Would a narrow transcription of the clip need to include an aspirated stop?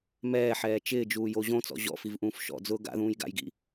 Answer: no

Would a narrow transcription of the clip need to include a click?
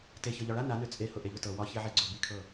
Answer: yes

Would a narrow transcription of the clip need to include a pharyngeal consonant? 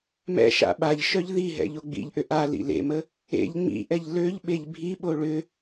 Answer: no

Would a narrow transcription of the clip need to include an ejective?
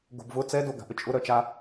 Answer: yes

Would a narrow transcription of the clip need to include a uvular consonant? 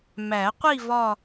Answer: yes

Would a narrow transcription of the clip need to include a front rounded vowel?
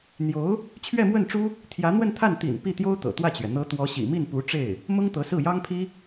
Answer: no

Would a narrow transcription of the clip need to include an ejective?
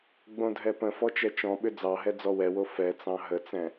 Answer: no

